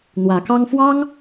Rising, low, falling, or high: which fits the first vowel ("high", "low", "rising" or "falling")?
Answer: rising